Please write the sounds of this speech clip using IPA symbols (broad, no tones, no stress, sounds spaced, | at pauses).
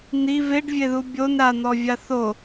n̪ i v e ɖ vʲ e ð u bʲ o n ɾ a n̪ ɔ vʲ a θ o